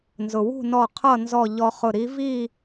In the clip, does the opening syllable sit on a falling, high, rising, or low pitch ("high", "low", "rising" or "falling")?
low